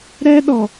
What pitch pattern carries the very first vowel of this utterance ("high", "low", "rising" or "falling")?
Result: high